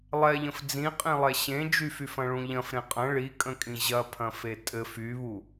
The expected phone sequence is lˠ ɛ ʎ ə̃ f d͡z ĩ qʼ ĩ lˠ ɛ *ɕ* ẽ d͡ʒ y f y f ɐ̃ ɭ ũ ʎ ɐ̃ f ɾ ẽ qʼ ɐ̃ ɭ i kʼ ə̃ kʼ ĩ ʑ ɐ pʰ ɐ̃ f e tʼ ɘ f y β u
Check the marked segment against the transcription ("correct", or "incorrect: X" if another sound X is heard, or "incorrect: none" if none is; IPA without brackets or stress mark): correct